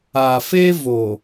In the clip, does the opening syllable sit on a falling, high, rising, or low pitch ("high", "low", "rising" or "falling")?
low